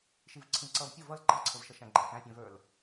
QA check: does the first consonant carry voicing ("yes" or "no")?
no